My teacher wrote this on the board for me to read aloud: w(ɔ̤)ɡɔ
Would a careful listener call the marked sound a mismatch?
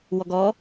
yes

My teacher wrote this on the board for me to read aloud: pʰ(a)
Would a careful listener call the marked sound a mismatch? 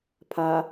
no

